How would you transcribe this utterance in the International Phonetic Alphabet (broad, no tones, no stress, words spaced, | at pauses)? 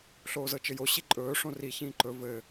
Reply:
ɬoːzɤt͡ʃɘjo ɕiǃʼɵː ʂõri çĩːǃɵ vɘː